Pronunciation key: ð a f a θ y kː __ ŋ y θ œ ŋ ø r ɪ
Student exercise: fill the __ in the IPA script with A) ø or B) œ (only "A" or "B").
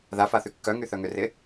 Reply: B